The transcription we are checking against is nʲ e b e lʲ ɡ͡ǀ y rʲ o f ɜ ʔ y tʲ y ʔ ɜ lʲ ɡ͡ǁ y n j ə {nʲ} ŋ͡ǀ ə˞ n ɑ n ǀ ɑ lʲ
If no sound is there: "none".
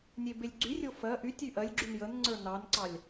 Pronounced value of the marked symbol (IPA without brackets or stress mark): n